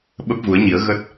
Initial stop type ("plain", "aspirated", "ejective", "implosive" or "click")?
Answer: implosive